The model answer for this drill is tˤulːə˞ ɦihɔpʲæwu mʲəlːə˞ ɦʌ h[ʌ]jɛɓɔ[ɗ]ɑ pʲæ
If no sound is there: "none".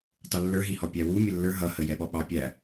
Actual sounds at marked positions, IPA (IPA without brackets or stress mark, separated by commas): ə, ɓ